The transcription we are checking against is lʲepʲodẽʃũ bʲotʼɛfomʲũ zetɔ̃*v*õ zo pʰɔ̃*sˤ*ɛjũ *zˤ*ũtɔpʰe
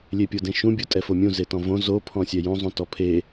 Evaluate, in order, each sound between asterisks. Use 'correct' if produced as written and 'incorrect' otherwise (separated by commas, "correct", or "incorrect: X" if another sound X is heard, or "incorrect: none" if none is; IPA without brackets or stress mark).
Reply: correct, incorrect: sʲ, correct